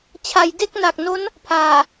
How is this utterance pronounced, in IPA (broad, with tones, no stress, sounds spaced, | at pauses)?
t͡ɕʰ a˩˦ j d e˥˩ k̚ n a˨˩ k̚ n o˦˥ n | pʰ aː˨˩